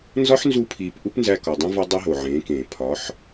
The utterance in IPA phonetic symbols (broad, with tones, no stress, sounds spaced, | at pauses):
n z ɒ˦ ħ n z u˧ pʰ iː˨ p ʔ u˦ p n z æ˧ k ɒ˨ dˤ ĩ˦ v ɒ˦ dˤ e˦ ɦ o˨ ʕ ẽː˨˦ k ẽː˨ pʰ ɒ˨˦ ħ